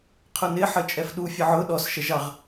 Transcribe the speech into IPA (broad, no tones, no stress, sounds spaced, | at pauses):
qʰ ʊ n ɪ ħ ə t͡ʃʼ ɛ f ɗ u fʲ ə ʕ ʊ ɗ ɔ s ʃ ɛ ʒ ɑ ʁ